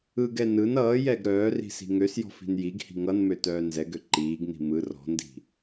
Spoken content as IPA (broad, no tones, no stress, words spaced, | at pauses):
ɯɡɛ nɯn ʌːjɛɡ ɾœːri̤ si̤ŋøsjɔ̤ fi̤njiɡhi̤ ŋʌnmø tœːnzɛɡø ǃiːɡni̤ mɯ rɔ̤ndi̤